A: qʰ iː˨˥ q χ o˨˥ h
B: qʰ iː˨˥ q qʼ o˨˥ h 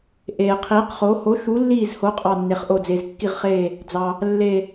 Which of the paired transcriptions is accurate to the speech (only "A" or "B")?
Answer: A